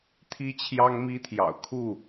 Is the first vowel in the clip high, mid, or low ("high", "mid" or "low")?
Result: high